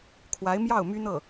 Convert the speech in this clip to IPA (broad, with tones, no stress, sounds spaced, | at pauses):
kʰ w a˧˥ ɪ̯ m j ɑ˥˩ ʊ̯ m y˥ n̪ ɤ˥˩